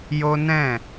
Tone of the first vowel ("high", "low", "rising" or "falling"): high